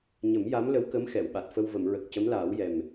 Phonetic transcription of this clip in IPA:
ɲ ə˨˩˦ m j a˧˥ m l ə˧˥ w k ə˧˥ m x ɛ˨˩˨ w ɓ a˨˩ t̚ f ə˧ w v ə˨˩˨ m ɹ ə˨˩ k̚ c ə˧˥ m l aː˨˩˦ w j ɛ˨˩ m

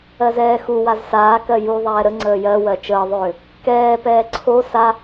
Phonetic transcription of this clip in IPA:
ɜ z ɛː x u w a z s aː k ɜ j u ðˤ ɛː ɾ ə ŋ͡ǀ əː j ɜ w ɜ t͡ʃ əː ðˤ ʏː | k ɛː p ɛː ǀʰ o s a

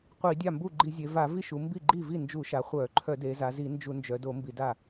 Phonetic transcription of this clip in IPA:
qʷ i˧˩˧ dʲ a˥˩ m b u˥˩ ɡ͡ǃ i˧˩˧ zʲ e˩˧ v a˧˩˧ v i˥˩ ʃ u˩˧ m b i˥˩ ɡ͡ǃ i˥˩ v i˥˩ n d͡ʒ u˧˩˧ ʃ a˩˧ χʷ œ˧˩˧ ǃʰ œ˧˩˧ d e˩˧ z a˩˧ z i˧˩˧ n d͡ʒ u˧˩˧ n d͡ʒ œ˩˧ d o˧˩˧ m b i˧˩˧ d a˥˩

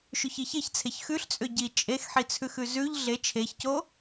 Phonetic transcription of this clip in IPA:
ʃ ʉ ç i ç e ç t͡sʰ e ç x ʉ ɬ t͡sʼ ʏ ɟ i t͡ʃʼ e x ħ i t͡sʰ ʉ x ʉ z ʉ ʎ ɮ e t͡ʃʰ e ç c o

